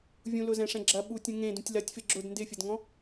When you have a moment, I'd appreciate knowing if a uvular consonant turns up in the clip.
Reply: no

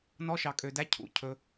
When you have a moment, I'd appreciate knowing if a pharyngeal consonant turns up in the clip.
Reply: no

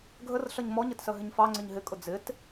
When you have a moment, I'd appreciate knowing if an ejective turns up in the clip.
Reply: yes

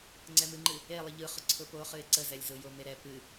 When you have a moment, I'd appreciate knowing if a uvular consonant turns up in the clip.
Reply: yes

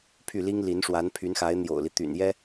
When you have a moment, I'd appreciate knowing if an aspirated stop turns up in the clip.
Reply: yes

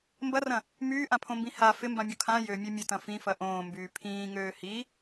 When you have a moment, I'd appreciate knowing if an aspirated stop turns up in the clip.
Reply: yes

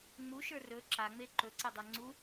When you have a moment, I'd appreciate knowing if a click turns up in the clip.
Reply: yes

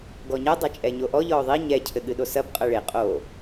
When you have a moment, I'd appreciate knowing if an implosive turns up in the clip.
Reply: yes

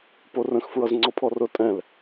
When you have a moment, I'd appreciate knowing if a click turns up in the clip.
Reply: yes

